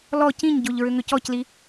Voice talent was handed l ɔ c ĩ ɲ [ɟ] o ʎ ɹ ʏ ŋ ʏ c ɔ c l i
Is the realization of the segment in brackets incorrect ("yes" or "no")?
no